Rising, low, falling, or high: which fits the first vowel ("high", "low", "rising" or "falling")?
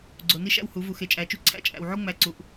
low